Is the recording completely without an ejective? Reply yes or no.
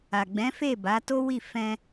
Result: yes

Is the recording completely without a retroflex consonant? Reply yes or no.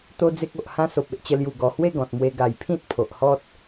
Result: yes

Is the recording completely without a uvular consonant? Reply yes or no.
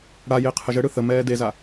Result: no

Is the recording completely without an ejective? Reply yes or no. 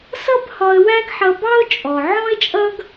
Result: no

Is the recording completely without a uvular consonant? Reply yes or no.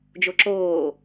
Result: yes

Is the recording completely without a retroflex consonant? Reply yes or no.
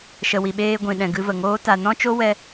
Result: yes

